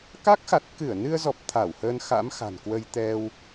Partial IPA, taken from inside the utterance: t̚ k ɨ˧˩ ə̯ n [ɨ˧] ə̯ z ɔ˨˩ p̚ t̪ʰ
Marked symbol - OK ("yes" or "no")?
yes